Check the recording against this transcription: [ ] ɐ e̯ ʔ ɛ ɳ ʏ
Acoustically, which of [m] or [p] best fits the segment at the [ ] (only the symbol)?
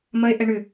m